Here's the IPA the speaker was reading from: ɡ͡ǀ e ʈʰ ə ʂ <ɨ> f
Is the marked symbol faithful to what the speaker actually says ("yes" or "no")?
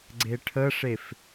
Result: no